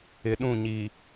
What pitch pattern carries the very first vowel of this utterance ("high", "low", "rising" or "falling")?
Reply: low